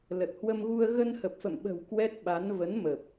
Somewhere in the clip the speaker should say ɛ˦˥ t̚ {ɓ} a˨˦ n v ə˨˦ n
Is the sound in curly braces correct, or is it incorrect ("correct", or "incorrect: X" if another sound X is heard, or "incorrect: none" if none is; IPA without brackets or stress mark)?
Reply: correct